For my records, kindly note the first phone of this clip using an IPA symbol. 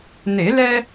n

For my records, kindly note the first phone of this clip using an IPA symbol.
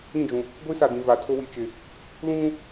ĩ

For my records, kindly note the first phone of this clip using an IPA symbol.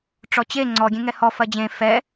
ʈ͡ʂ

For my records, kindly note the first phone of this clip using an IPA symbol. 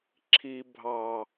ǁʰ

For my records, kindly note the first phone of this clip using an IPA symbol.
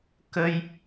k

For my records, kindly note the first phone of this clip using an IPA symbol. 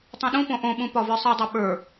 tˤ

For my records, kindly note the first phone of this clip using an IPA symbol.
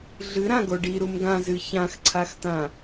ɮ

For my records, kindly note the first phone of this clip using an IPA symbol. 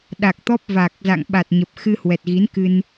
ɗ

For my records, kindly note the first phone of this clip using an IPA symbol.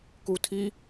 k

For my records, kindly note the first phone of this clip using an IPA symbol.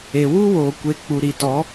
e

